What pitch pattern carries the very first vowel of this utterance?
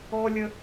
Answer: high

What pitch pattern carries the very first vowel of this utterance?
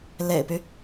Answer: low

